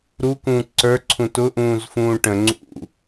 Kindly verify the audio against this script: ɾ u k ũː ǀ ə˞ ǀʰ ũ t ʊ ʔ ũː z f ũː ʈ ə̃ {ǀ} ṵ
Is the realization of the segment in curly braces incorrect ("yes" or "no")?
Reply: yes